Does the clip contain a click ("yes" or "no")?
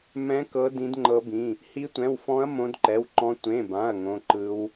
yes